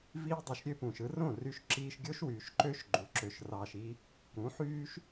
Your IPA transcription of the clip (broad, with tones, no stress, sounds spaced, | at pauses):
v iː˦ dˤ y˨ ʃ ɾʲ ø˦ p ũː˨ ʃ ɯ˧ r õ˦˨ r y˧ ʃ ǁ iː˧ ʃ ɡʲ o˦ ʃ w yː˨ ʃ ǃ ø˦ ʃ ɡ͡ǃ u˨ ǁ ø˧ ʃ r ɑː˧ ʃ i˦ | k ũ˨˦ ħ yː˦ ʃ